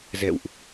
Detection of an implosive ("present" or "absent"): absent